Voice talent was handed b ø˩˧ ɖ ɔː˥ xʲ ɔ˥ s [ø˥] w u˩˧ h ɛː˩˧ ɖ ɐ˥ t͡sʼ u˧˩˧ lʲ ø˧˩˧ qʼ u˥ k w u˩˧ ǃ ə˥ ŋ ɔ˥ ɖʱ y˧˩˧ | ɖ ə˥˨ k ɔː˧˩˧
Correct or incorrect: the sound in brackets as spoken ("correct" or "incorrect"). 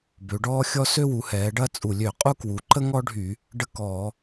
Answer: correct